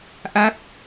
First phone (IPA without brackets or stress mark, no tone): ʔ